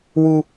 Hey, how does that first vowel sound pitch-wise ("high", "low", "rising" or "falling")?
low